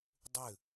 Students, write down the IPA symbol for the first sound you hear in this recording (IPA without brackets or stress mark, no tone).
dˤ